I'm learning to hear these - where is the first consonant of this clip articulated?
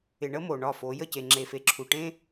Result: retroflex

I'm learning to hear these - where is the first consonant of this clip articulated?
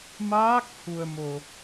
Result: lips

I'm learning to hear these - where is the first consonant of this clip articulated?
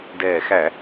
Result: tongue tip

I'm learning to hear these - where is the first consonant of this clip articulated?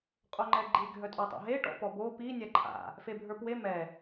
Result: uvula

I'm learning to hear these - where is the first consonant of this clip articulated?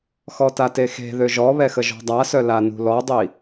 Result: velum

